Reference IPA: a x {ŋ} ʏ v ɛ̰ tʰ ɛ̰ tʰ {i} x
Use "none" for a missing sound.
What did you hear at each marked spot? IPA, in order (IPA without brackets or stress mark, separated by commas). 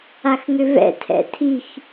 ŋ, i